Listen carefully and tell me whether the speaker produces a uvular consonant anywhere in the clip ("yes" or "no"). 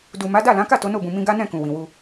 no